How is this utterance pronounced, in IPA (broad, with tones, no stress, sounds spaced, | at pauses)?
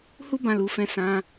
h u˦ b ã˧ l u˨ f ɛ̃˧ s ã˧